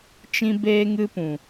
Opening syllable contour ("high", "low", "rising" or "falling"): high